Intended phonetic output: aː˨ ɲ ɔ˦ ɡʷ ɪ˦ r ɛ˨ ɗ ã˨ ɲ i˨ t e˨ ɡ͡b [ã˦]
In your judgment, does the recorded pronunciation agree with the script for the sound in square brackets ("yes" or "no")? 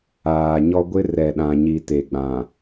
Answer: no